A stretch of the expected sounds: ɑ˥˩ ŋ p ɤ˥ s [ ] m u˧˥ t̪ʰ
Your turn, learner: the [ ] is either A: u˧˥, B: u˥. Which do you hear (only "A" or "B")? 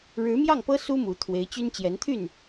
B